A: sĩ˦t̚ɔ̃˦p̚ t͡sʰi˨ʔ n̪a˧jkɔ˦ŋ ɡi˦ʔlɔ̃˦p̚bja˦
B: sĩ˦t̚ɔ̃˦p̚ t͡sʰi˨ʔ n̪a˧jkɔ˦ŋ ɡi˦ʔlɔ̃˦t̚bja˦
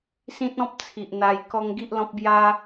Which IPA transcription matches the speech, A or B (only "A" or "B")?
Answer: A